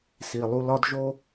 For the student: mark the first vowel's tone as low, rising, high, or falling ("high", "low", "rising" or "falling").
low